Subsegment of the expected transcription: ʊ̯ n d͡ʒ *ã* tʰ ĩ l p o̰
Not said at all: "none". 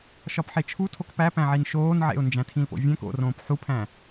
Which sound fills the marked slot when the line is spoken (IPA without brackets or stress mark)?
æ̃